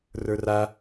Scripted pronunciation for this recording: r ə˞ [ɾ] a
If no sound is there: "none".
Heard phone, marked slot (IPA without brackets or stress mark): r